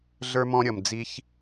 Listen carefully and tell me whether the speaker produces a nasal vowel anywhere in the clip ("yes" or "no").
yes